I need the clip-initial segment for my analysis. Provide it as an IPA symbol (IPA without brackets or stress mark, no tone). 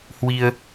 h